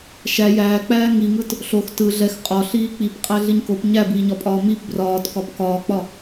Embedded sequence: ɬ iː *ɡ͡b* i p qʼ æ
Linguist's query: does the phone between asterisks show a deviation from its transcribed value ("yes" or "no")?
yes